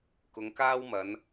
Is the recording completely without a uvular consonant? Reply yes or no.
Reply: yes